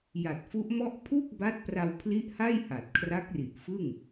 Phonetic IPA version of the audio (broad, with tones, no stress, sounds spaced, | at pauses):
j a˨˩ t̚ f u˦˥ ʔ m ɔ˥˩ ʔ pʰ u˥˩ k̚ b a˦˥ t̚ p r a˧ w pʰ l i˦˥ ʔ h a˥˩ j h a˨˩ t̚ kʰ r a˦˥ k̚ r i˨˩ ʔ f ɯ˥˩ ŋ